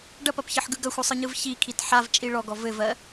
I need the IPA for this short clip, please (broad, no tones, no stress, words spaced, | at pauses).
ɖɐpɐpçɘħɡɯ ɡɐxʷɯsˤɯɲɯv çikʰit ħavt͡ʃʼi ɭɔɡɔ vɘvɜ